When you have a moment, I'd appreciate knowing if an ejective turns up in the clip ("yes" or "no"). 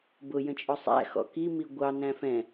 yes